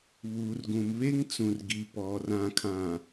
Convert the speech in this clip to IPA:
βuː˨rɡũ˨m βe˦ŋt͡sũ˨rɡi˨ pɔ˨ rã˨kʰã˨

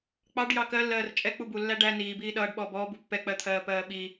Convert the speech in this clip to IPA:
k͡pɑɖ jɑkɜlːɜːr t͡ʃʼɛ k͡pubulːæ ɖæ niː biːɗʌːɖ ɓɔːbɔː bupːɛ k͡pɜt̪ʰɜːpɜːɓi

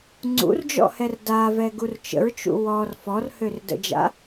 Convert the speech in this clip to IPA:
ŋ͡ǀṵrd͡ʒɔ̰hɛr davɛɡur t͡ʃə̰ɹt͡ʃṵ wɔr fɔrhørdə̰d͡ʒa̰

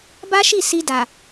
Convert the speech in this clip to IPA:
ba˦ʃi˦˨ si˧da˨

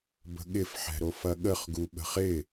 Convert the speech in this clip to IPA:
bə̤ɠɪfħɛ̤ɾof ɐɠəχɡu ɓə̤χɪ

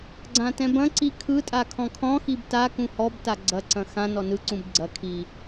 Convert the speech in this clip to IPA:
ɡ͡ǀãtɛ̃bɐ̃ǀi kʰɯtʼa kʰɔ̃kʰɔ̃xib ta kũhɔbta ɡ͡ǀɐǀɐ̃ xã nɔnɯǀũb ɡ͡ǀɐ kʰi

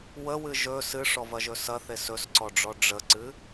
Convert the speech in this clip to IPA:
wəwɨ ʒɵ sɨʂɔvɐʒɵ sɐθe sɵsǀɔɖ͡ʐɔ ɖ͡ʐəǀɨ

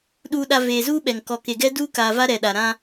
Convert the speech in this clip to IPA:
ɗuː˨ɗa˨ veː˨zuː˦ɓɛ˨ŋ kɔ˨ke˨ɡɛ˦ duː˦kaː˨va˦ ɾɛ˨ɗa˨ɾã˦

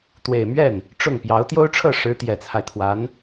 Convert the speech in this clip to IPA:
t̪we˨˩ɪ̯mɥɛ˥˩n | ʈ͡ʂʊ˥˩ŋpjɑ˧˥ʊ̯ t̪jo˥ʊ̯ʈ͡ʂʰɤ˥˩ʂɻ̩˧˥ t̪jɛ˨˩t͡sʰa˦ɪ̯t̪ʰwa˧˥n

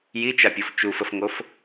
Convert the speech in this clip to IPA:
jit͡ʃapʲof t͡ʃufəfŋof

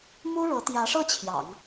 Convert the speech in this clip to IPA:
mu˥ɻɤ˧˥ t̪jä˧˥ʂɤ˥˩ t͡ɕʰjɑ̰˨˩˦ŋ

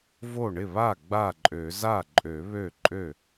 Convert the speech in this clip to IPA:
vo˥˩ ɳɪ˥˩βa˥˩ ɡ͡ba˥˩ǃʼø˨˩˦ za˥˩ ǃʼø˨˩˦βø˥˩ ǃʼø˥˩

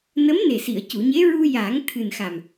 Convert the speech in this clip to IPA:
nə˧˥mne˨˩si˨˩˨ə̯ cu˨˩˨ɲe˧˥ ɹu˧ jaː˨˩˦ŋ t̪ʰɨ˨˩nxa˨˩m

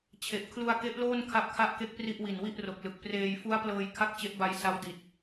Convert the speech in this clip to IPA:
t͡ɕʰe˨˩ʔ kʰlu˧a̯ke˦˥ʔloː˥˩n kʰa˦˥p̚kʰa˥˩ʔke˦˥k̚pri˥˩ʔ wi˨˩nwi˥˩ʔro˨˩k̚lɯ˨˩k̚ preː˧j fu˦˥a̯plɤː˧j kʰa˥˩k̚t͡ɕe˦˥ʔba˧j sa˦˥wdi˨˩t̚

